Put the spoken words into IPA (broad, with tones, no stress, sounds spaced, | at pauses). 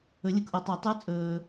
ɵ˨˩˦ lʲ ɯ˨ k ʔ o˨ tˤ ɛ˨˩˦ tˤ ɯ˨˥ t͡sʼ ɵː˨